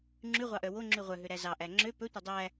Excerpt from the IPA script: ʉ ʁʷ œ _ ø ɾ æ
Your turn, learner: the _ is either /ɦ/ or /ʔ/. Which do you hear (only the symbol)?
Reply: ɦ